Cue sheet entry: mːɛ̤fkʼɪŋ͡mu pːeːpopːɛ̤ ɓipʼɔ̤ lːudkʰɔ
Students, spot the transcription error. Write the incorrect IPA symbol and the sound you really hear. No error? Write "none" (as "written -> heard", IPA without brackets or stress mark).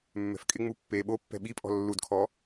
p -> ɓ